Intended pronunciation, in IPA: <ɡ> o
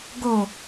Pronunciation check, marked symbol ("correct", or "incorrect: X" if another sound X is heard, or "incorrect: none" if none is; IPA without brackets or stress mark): correct